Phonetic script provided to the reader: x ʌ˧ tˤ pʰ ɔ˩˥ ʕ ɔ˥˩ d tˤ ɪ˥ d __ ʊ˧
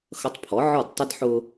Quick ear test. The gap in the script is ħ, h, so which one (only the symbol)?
ħ